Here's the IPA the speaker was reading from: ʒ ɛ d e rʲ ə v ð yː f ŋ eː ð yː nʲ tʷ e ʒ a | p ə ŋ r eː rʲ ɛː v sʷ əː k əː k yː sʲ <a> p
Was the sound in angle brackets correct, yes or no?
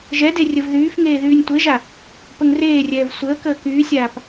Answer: no